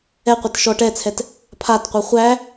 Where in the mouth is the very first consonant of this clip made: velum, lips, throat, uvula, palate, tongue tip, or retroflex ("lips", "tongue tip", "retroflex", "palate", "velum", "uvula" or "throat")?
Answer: uvula